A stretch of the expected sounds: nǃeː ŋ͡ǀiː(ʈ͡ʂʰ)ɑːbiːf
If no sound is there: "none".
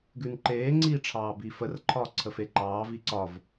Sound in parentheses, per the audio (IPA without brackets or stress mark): ʈ͡ʂʰ